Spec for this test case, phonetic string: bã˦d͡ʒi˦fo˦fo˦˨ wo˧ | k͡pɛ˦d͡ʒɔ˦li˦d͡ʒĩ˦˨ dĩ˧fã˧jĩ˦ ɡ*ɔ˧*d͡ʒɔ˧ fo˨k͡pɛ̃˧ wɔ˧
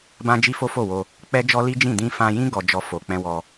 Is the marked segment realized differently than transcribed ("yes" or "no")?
no